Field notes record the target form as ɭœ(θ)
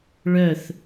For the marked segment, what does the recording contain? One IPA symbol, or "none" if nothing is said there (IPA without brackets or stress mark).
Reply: θ